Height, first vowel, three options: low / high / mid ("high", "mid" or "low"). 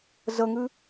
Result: mid